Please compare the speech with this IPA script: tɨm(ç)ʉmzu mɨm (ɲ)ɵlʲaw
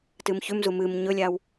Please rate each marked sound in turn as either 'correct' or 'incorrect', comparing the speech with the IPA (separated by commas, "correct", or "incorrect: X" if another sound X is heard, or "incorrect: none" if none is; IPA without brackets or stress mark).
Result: correct, correct